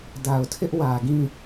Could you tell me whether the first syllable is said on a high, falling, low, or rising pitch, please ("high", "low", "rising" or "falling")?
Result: low